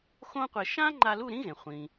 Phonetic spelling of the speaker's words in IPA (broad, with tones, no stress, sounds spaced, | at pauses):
x õ˥ qʷ e˧˩ ʃ ã˥ ŋ͡ǃ a˧ l u˥˨ ɾ ĩ˥ ɣ ẽ˩ χʷ ĩ˩